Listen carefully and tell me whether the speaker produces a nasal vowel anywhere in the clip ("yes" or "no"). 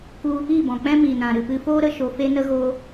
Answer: yes